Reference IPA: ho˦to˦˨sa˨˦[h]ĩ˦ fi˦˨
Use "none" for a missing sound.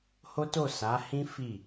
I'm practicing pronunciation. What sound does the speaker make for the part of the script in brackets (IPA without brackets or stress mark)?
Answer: h